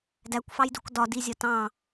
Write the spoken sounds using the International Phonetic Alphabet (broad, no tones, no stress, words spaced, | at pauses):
dækʷfɑjduk dɒdizʲɒ tɑ̃